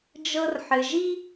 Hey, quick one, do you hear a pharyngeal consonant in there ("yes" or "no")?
yes